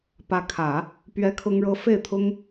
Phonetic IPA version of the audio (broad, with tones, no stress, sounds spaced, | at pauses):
p ä˧˥ kʰ ä˨˩˦ | p ɥ ɛ˥ kʰ ʊ˥ ŋ ɻ ɤ˥ f e˥˩ ɪ̯ t̪ʰ ʊ˥ ŋ